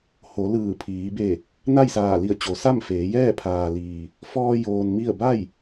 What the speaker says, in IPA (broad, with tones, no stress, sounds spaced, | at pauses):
h o˩˧ l ɯː˧˩ pʰ iː˩˧ b e˧˩ | n a˥˨ j s aː˧˩ l i˧˩ ə̯ t͡ɕ o˩˧ s a˥˨ m f eː˩˧ j ɛː˥˨ pʰ aː˩ l iː˩ | f ɔː˧ j oː˧ n m i˥˨ ə̯ b a˥˨ j